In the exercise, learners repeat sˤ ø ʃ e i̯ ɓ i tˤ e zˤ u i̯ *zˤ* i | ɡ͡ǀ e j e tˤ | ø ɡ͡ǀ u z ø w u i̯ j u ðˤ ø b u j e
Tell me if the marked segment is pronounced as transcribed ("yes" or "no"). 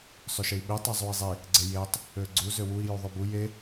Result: yes